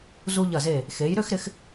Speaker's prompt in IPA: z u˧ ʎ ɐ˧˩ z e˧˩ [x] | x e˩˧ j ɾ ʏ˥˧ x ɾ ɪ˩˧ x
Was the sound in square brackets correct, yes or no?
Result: no